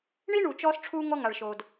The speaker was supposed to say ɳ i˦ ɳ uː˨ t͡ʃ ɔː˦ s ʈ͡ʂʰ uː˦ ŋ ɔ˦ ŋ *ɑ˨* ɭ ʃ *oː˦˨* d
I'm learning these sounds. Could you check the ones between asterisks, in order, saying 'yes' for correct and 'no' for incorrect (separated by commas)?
no, no